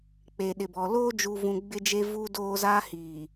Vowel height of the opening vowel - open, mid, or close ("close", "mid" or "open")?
mid